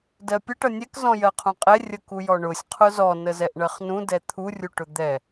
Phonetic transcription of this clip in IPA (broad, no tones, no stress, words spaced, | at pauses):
dɜpʲə ʈʌnʲɛk zɔ̃jɜqʰũqʼɛ rʲəkujɔɳʊsʲ qʰʊzɔ nəzɛʔɳɜχnũ dɛt̪ʰu rʲuʈʊd̪ɛ